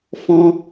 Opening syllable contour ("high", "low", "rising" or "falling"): high